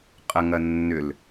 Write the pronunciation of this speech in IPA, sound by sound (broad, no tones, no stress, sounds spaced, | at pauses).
qʼ ɐ ŋ ɐ nː ʏ l